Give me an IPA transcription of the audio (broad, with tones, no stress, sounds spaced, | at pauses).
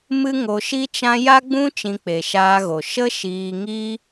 m ɨ˦ ŋ o˧ ʃ i˦ t͡ʃ ã˦ j a˦ ɡ͡b ũ˦ t͡ʃ ĩ˧ k͡p e˨ ʃ aː˧ ɣ o˨ ʃ ə˦ ʃ iː˧ ŋ i˦